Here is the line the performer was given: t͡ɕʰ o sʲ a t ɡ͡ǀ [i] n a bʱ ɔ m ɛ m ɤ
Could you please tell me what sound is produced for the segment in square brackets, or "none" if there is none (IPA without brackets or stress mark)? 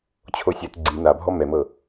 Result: i